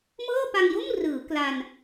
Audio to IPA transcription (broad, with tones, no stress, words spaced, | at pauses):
mɤː˥˩pa˧ŋjo˥˩mrɯː˩˦ kla˧n